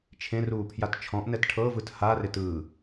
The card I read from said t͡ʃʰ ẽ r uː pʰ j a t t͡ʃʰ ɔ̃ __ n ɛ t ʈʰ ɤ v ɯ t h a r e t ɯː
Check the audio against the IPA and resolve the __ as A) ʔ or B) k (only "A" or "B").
A